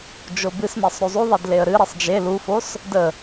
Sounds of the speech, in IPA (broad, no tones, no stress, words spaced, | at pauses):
d͡ʒobɨsmesˤ ɾuzˤuðˤed leə̯ɾɨɾesˤ d͡ʒe lufos | də